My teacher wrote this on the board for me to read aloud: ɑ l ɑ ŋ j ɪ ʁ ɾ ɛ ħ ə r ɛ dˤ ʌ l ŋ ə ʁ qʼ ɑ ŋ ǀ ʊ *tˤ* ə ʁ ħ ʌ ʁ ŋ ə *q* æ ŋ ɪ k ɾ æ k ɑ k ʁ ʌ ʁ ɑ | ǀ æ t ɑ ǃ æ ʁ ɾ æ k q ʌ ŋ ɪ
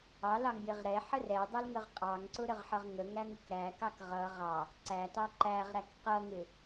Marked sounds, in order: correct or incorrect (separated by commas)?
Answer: incorrect, incorrect